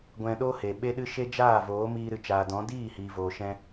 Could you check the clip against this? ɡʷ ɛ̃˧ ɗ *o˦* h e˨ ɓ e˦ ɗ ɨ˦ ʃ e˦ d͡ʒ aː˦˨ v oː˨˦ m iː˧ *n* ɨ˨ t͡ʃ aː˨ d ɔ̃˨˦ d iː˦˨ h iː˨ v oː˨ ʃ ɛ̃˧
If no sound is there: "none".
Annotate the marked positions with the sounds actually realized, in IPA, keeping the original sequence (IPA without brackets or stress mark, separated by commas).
o˦, ɾ